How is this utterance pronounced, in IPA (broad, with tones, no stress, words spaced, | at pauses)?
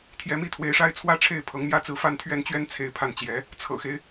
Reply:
t̪ʰjɛ˧˥mi˥t̪ʰwe˧˥ɪ̯ʂa˥ɪ̯ t͡sʰwä˥ ʈ͡ʂʰe˥˩ɪ̯ pʰɤ˧˥ŋmjä˥t͡sɹ̩˥˧ fa˥˧nt̪ʰɥɛ˥˩nt͡ɕɥɛ˥n t͡sʰe˥˧ɪ̯pʰa˥˩nt͡ɕjɛ˧˥ | t͡sʰɤ̰˨˩xe˦ɪ̯